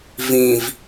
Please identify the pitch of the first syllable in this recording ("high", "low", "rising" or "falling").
low